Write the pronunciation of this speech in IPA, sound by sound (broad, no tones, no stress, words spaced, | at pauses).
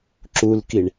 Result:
ǁulkiɳ